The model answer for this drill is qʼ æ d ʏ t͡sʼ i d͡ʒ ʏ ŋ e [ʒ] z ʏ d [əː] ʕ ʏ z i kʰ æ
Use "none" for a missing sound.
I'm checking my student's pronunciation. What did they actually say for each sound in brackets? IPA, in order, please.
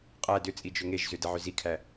ʒ, ə

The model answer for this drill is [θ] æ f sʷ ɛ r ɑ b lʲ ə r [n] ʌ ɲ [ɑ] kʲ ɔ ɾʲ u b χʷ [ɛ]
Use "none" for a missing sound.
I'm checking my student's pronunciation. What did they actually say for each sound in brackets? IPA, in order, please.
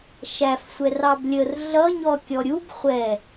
ʃ, ɮ, ɔ, ɛ

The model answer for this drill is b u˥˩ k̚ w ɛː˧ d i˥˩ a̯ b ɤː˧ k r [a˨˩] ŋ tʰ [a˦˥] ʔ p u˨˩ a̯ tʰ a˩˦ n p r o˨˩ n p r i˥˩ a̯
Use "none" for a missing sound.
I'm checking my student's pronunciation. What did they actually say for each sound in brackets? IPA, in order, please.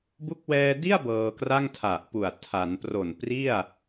a˥˩, a˨˩

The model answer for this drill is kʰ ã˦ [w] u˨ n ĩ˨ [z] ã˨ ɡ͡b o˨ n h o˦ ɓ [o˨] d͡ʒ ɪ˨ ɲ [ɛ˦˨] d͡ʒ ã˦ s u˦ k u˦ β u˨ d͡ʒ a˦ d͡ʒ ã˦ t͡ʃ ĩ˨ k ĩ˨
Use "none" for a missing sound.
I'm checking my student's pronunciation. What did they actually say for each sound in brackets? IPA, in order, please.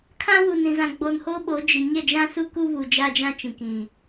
w, z, o˨˦, ɛ˦˨

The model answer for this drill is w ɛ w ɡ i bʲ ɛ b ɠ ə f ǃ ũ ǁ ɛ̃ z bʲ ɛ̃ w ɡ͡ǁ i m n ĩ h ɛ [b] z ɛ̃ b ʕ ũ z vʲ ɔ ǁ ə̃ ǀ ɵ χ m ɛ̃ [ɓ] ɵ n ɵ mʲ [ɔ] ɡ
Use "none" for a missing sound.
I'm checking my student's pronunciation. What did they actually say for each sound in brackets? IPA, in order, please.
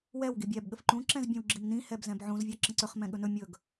b, ɠ, ɵ

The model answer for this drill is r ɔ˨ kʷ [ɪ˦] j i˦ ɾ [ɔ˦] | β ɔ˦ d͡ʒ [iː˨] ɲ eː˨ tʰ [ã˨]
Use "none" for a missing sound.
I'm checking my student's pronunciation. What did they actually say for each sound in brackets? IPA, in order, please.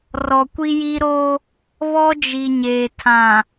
i˦, o˦, i˨, ã˨

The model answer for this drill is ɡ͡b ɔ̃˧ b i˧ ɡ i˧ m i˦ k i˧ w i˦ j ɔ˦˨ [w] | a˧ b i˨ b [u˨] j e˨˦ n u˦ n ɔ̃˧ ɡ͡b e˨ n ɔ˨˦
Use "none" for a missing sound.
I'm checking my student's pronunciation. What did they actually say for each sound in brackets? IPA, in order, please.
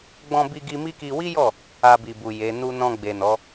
none, u˨

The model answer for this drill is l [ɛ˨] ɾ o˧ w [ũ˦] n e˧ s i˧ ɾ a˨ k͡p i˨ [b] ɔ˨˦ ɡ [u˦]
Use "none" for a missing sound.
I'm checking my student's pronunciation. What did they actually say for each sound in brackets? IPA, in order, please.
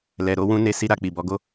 ɛ˨, ũ˦, b, o˦

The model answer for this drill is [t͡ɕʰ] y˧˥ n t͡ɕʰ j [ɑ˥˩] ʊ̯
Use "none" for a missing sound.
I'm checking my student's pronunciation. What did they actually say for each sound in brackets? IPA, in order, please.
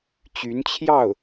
t͡ɕ, ɑ˥˩

